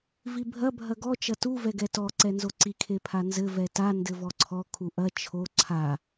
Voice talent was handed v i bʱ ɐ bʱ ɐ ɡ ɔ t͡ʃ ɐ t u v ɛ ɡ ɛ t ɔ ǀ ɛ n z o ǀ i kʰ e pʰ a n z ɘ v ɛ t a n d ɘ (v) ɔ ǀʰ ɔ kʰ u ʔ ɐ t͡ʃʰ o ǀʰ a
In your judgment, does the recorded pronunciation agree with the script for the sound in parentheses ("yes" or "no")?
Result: yes